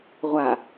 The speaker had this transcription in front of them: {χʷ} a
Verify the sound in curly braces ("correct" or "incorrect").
incorrect